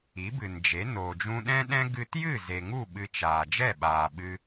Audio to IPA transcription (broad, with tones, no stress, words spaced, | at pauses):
i˨˦bɨ˨nd͡ʒe˨˦ noː˨d͡ʒũ˧ɗɛ̃˦ɗɛ̃˦ ɡɨ˧tjɨ˦˨ ze˨ŋu˦˨ ɓɨ˧t͡ʃaː˨ d͡ʒɛ˦˨ɓaː˨ɓɨ˧